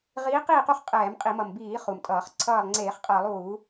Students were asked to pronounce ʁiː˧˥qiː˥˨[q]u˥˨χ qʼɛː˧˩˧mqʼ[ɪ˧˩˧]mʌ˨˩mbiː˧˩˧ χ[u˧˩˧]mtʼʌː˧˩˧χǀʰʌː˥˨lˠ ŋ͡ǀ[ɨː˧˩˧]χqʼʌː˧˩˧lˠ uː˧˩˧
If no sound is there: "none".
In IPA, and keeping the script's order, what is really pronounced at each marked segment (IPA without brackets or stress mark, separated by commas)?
q, i˧˩˧, u˨˩, eː˧˩˧